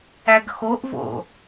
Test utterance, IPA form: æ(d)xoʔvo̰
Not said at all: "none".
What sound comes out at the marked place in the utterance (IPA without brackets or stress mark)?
ɡ